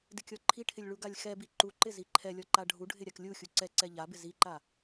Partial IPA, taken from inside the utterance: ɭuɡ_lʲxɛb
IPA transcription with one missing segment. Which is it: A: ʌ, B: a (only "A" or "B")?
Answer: B